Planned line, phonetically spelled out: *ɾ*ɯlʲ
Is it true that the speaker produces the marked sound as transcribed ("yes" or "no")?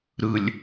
yes